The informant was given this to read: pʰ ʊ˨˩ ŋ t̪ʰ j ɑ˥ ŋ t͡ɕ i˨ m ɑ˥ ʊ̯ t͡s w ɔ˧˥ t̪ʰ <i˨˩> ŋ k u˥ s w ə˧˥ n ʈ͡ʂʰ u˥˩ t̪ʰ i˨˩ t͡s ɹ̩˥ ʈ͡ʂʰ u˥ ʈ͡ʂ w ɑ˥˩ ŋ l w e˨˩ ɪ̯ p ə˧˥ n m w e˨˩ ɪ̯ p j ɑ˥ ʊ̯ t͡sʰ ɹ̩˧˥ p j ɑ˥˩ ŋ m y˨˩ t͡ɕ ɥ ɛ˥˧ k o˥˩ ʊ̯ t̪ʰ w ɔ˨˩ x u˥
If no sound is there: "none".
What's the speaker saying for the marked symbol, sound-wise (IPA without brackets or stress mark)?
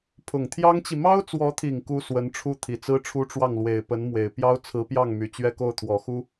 i˨˩